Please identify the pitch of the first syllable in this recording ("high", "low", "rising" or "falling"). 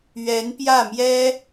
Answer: rising